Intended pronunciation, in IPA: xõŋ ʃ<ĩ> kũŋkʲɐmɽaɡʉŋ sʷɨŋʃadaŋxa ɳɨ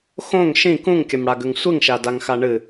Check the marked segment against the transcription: correct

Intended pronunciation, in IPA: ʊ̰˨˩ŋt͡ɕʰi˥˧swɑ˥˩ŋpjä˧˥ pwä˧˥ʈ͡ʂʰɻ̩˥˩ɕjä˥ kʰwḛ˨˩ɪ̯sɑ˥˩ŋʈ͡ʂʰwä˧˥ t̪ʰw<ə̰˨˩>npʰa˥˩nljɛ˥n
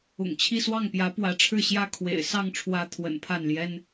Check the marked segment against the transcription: correct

